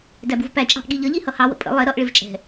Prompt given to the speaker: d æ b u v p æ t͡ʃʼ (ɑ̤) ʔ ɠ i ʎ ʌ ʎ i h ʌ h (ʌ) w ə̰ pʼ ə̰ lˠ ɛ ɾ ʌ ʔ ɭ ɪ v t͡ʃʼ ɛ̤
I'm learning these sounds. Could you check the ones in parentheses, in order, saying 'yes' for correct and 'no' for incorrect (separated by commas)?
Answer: yes, no